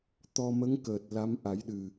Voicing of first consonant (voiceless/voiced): voiceless